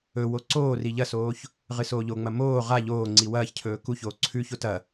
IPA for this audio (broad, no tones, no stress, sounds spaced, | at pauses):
ɵ w o ǀ oː r i ʎ ɐ s oː ç | ʁ ɨ s oː ʎ o ŋ͡m ɐ m oː ʁ a ʎ oː ŋ͡ǀ i w ɐː ç cʰ ɵː k u ç oː ǀʰ ʉ ç o t ɐ